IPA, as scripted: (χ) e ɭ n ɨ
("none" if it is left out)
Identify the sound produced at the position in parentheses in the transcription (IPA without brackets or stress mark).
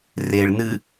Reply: r